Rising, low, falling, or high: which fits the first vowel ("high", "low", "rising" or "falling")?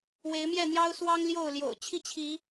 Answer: rising